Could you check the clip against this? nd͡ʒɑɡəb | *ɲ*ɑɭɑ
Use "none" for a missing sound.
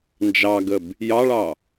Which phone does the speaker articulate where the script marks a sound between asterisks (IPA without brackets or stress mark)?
j